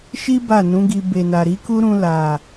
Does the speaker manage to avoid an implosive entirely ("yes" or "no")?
yes